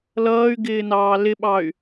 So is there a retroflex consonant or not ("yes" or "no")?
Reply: no